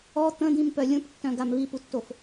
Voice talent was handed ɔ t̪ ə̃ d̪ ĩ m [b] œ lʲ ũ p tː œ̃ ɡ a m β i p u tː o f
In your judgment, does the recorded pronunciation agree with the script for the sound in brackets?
no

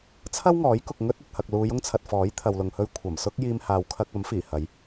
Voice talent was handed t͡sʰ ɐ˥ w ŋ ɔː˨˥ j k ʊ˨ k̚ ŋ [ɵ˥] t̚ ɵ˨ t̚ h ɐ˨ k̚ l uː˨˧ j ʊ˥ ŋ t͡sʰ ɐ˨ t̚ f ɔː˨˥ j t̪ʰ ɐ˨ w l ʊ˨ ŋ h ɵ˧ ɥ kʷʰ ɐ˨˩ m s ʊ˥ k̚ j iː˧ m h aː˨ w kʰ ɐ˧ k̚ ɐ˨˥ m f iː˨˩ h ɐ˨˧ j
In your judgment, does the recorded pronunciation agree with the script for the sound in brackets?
yes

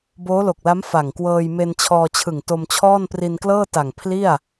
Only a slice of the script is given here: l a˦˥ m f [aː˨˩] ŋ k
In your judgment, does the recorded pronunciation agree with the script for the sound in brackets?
no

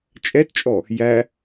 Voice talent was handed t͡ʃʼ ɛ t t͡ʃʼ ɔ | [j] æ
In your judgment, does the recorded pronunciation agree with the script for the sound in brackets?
yes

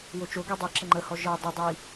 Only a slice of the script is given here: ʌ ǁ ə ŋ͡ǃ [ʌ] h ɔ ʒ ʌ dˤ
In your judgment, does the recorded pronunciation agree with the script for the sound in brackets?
no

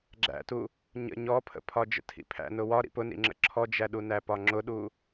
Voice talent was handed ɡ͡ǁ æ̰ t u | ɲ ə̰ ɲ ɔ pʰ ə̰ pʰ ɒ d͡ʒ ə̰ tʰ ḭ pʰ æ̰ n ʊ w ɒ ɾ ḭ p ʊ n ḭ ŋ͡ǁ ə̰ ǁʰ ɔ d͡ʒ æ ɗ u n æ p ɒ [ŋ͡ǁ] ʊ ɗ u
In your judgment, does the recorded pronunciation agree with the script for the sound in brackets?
yes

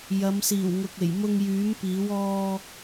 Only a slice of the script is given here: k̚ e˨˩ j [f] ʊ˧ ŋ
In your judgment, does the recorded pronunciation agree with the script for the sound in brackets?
no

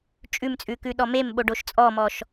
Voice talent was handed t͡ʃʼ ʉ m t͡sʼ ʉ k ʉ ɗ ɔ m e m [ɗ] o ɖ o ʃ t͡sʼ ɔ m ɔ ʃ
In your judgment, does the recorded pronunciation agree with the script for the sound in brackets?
no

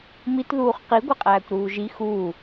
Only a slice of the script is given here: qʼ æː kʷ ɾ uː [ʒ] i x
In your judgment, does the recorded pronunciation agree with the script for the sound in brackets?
yes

